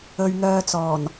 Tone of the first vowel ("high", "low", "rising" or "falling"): low